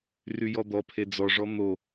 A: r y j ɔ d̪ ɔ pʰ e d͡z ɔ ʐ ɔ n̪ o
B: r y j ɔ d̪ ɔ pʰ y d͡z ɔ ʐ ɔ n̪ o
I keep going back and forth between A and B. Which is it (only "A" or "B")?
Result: A